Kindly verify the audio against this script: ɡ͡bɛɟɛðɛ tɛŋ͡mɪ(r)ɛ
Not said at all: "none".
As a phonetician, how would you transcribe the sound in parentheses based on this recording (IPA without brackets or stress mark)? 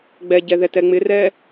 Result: r